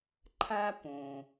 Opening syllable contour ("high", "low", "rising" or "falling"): high